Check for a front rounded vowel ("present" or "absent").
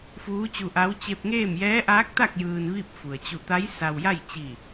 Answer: absent